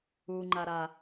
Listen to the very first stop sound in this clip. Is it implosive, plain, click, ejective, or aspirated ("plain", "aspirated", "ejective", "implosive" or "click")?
click